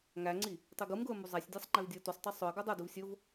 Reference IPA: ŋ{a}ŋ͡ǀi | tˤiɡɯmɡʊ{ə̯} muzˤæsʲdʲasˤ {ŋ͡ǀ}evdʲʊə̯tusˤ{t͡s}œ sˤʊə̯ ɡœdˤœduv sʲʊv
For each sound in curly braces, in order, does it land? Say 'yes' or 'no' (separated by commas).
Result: no, yes, no, no